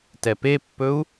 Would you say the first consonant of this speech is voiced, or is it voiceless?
voiceless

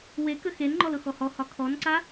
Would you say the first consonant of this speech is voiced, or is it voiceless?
voiced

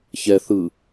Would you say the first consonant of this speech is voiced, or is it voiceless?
voiceless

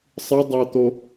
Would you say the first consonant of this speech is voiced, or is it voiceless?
voiceless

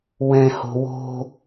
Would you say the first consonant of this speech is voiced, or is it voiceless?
voiced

